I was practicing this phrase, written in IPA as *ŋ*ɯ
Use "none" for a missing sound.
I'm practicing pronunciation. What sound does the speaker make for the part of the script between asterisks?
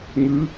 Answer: ŋ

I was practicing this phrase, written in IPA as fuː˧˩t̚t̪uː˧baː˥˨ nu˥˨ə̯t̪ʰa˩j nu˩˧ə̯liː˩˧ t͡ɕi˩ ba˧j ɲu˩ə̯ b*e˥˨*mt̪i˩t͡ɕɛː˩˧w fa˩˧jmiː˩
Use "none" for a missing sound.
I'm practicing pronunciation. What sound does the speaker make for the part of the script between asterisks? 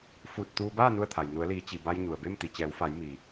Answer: e˥˨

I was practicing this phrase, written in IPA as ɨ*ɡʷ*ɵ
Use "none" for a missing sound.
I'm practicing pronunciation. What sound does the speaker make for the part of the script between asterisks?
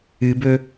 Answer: b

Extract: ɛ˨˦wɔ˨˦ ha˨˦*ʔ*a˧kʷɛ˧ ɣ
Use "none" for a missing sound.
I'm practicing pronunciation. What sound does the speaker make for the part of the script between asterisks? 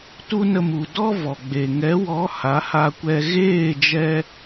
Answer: h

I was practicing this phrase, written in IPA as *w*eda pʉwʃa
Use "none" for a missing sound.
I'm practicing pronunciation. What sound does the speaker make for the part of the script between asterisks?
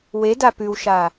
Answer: w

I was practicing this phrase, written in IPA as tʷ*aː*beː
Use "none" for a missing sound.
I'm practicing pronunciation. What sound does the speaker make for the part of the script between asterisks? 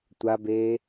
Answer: a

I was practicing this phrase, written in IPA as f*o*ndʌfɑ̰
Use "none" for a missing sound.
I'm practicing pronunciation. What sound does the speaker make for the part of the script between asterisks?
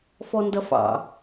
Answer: ɔ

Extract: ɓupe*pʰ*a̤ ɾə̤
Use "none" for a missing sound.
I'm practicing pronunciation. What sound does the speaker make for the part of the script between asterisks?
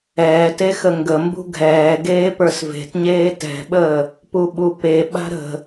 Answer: ɓ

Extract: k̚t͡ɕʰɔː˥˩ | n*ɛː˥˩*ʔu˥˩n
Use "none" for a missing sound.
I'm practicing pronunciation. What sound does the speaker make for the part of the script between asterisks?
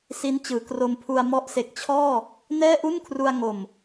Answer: ɛː˥˩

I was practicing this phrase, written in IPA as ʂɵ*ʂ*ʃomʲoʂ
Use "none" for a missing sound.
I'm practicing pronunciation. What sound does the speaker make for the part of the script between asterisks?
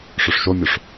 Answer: ʂ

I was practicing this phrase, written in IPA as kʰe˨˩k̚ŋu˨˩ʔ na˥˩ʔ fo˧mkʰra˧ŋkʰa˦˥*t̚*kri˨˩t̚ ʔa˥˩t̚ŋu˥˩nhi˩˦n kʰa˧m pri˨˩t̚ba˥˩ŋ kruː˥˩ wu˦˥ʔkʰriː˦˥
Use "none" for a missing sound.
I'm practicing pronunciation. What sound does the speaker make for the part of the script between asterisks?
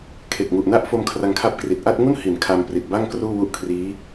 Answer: p̚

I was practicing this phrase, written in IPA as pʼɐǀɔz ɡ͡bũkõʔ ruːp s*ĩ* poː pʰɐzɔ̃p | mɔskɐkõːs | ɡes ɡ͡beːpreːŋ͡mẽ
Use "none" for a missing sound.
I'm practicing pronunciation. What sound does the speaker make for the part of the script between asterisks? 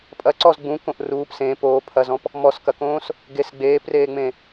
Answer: ẽ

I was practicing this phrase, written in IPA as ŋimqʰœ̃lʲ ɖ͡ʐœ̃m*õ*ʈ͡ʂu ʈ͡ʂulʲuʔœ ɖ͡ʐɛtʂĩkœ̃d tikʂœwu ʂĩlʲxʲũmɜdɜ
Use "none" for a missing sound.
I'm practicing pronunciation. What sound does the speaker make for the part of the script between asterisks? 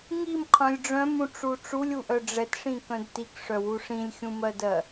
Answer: ũ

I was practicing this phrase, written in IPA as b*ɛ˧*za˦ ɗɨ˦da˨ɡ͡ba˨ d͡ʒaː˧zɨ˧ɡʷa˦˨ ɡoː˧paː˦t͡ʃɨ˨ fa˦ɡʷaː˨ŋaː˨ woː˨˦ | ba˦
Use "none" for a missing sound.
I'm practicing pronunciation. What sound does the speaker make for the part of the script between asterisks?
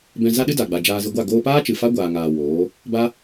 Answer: ɛ̃˧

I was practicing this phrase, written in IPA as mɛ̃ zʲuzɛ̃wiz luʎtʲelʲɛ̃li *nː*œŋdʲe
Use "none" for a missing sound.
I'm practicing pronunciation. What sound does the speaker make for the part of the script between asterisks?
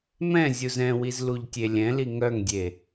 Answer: ŋ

